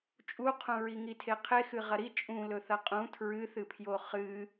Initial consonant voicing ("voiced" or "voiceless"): voiceless